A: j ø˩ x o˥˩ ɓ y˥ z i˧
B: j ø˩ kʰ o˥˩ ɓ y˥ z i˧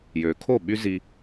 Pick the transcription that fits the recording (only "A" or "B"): B